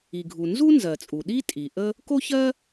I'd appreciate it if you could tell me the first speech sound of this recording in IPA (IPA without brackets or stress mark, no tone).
i